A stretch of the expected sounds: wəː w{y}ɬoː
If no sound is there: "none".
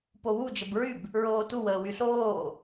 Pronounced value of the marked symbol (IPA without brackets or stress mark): y